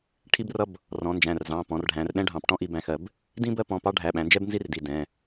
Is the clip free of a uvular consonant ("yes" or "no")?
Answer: yes